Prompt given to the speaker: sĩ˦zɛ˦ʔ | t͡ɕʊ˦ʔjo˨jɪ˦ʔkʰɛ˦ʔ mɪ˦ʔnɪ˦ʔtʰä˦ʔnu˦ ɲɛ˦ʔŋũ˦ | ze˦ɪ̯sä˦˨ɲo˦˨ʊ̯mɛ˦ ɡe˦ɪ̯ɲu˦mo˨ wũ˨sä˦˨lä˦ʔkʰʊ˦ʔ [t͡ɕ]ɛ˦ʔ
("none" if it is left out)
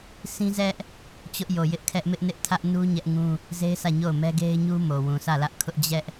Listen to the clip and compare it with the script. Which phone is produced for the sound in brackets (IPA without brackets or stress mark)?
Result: d͡ʑ